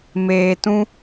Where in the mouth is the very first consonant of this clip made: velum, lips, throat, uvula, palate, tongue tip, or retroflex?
lips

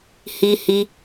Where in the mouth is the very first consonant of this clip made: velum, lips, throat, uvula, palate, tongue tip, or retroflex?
throat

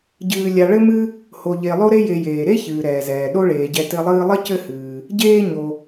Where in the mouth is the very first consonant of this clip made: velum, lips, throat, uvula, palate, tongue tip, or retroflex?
palate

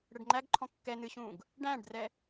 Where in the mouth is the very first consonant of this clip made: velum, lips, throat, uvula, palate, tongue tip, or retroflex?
retroflex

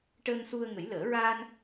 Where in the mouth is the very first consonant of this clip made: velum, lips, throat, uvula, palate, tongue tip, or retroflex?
retroflex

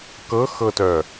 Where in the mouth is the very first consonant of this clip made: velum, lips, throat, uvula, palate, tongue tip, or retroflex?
velum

